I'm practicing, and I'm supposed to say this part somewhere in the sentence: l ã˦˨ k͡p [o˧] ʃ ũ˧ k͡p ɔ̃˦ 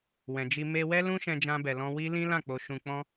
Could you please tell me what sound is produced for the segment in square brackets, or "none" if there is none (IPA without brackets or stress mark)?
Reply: o˧